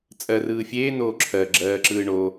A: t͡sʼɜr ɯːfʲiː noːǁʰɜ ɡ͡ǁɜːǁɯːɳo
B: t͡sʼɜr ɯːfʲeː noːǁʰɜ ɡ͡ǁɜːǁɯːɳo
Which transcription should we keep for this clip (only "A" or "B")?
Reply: B